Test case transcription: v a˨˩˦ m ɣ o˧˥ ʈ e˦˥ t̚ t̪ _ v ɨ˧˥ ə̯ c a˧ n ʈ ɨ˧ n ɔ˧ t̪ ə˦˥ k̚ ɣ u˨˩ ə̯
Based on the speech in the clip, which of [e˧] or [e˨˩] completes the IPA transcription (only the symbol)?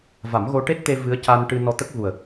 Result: e˧